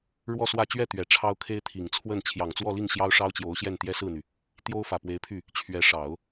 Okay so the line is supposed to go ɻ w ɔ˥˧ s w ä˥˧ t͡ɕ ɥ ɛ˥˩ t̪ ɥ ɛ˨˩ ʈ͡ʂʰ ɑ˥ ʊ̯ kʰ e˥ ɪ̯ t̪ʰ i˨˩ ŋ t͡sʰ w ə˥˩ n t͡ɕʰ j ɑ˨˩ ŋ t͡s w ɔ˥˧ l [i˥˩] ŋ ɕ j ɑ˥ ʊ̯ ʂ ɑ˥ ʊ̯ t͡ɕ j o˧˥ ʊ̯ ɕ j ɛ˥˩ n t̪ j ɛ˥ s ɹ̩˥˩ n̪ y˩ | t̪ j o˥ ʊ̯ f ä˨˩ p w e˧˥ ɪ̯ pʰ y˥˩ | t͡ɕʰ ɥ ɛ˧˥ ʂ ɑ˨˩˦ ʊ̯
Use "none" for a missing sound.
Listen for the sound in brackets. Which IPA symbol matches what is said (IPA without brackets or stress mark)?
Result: i˥˩